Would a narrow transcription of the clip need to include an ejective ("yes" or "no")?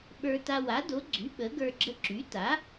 no